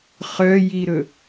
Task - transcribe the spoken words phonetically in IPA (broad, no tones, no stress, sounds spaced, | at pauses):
χ œ j i ɾ ɵ